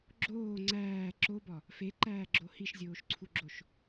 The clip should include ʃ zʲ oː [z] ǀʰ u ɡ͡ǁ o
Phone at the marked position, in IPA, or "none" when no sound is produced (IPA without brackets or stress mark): ʃ